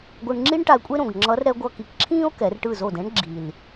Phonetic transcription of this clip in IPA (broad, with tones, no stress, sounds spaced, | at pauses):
ɡʷ ɯ˧ ɳ ŋ͡ǁ i˥ ɳ ʈ a˧ e̯ kʷʼ e˥ ɾ õ˨˩ ɡ ŋ͡ǁ ʌ˧˥ r ɾ ɛ˧˥ ɡʷ ʌ˧ k i˨˩˦ k ǁʰ ĩː˥ o̯ k ɛ˨˩˦ r ʈ ɯ˥˩ z o˥˩ d ɛ̃˧˥ ɳ ɡ͡ǁ i˨˩ l